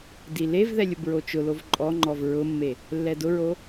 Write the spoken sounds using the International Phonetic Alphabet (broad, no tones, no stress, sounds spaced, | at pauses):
d i l e v ð ɛ lʲ ʊ b ɹ o t͡ʃ ʊ l o v ǃʼ ɔ ŋ͡ǃ ɔ v ɹ ʊ mː e | lː ɛ d ʊ ɹ o